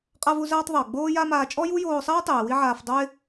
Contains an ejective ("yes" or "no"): yes